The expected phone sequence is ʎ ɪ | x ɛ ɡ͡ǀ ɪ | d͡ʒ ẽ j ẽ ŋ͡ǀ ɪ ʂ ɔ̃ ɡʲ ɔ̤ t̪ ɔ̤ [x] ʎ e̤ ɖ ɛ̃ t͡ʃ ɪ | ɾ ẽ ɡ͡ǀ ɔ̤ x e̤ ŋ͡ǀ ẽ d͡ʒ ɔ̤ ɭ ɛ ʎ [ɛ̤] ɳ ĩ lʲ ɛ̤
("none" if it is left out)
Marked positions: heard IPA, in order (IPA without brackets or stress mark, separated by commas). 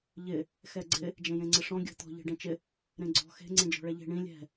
none, e̤